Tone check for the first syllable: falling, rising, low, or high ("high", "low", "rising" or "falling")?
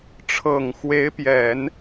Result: low